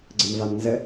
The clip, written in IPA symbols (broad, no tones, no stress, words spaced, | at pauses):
ɡ͡ǀəmvamnzə